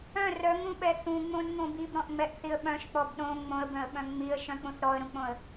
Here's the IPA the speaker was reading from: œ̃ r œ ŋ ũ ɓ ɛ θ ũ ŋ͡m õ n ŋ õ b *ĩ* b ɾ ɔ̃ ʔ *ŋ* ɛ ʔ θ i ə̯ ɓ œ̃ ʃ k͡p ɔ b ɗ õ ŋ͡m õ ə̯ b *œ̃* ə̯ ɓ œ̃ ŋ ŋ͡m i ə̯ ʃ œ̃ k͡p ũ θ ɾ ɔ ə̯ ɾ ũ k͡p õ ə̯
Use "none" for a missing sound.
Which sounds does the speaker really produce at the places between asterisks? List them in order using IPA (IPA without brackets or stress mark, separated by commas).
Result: i, ŋ͡m, œ̃